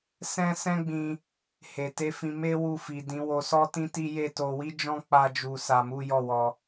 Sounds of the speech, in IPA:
sɛ̃˦ sɛ̃˦ɡ͡bĩ˧ | he˨te˨˦fĩ˧ me˦ wu˧fi˨ dĩ˨˦ wo˧sɔ˦tĩ˦ti˦ je˦˨to˧ wi˦d͡ʒɔ̃˦ k͡pa˦d͡ʒu˧sa˧mu˦ jɔ˦˨wɔ˧

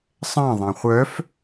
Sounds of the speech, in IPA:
sˤɛ̃ ðˤɛ̃χʷœf

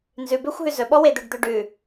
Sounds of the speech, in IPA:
nzʉbøxʷ ɦʉzɵɓɔ wed̪øɖd̪øɖʉ

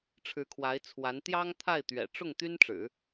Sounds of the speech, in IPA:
ʈ͡ʂʰɻ̩˧˥kʰwa˧˥ɪ̯t͡sʰwa˧˥n t̪jɑ˥ŋt̪ʰa˥˩ɪ̯ t̪ɥɛ̰˨˩ʈ͡ʂʊ˥˩ŋ t̪y˥nʈ͡ʂɻ̩˨˩˦

